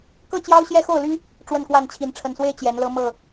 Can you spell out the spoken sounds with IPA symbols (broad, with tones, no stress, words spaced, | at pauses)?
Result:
kɤ˥˨t͡ɕjɑ˦ʊ̯ ɕjɛ˦xo˥˨ʊ̯ly˦ | ʈ͡ʂwə˥˨nkwa˥˨nt͡ɕʰi˨˦n ʈ͡ʂʰə˨˩nswe˥˨ɪ̯ t͡ɕjɛ˨˦nlɤ˦ mɤ˥˨